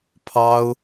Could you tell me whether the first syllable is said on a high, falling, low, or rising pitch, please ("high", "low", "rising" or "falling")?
high